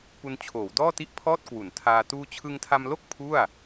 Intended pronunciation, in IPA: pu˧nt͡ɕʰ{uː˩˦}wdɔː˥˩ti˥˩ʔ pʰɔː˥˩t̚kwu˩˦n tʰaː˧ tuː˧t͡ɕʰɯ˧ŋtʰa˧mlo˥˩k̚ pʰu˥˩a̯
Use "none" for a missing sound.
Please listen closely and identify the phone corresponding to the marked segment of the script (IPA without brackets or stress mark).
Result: oː˩˦